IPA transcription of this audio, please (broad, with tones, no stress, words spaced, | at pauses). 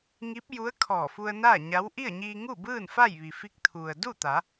ŋi˧˥p̚ju˧˥ə̯ kʰɔː˧˩fu˧ə̯naː˥˨ɲa˧˥w ʔi˥˨ə̯ɲiː˧ŋu˥˨bɯː˥˨n fa˥˨jʋi˩fi˧˥k̚ t̪ʰu˩ə̯du˥˨t̪a˩˧